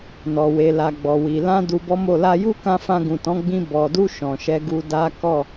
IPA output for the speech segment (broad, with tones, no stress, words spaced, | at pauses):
nɔ˨we˨la˨ ɡ͡bɔ˨wi˨ lã˧ du˧bɔ˦mo˦˨ la˧ju˦kã˧ fã˧ɡũ˨tɔ̃˨˦ɡ͡bĩ˧ bɔ˨du˧ ʃɔ̃˨ʃɛ˧ɡu˧ da˦ kɔ˦˨